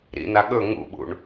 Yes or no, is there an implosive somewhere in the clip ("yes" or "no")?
yes